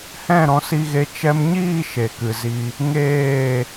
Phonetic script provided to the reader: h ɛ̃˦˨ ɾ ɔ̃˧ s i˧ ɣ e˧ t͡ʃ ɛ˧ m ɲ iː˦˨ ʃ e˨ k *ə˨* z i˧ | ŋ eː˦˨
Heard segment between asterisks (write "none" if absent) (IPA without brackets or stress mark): ɨ˨